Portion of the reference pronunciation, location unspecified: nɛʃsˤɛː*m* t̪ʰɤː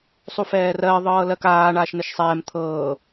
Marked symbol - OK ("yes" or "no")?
yes